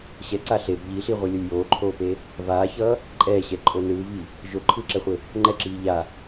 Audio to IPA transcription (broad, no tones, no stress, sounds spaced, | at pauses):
ɕ ɛ ǀ a ɬ e b ʎ i ɬ i ʁʷ ɯ lʲ ʌ lʲ j oː ǃʰ oː p e | v aː ç ʌː | ǃʼ ɛː ɕ ɛ ǃʼ o n ɯː v i | ʒ o ǃʰ ɯː ǁ ɛ χʷ e | ŋ͡ǃ ɛ ǁ iː ʎ a